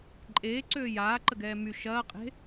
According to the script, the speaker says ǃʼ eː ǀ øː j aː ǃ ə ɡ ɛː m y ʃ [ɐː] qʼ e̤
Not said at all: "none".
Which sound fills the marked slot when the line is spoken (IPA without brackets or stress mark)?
ɐː